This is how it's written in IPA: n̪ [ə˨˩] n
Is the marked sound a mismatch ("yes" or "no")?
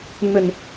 no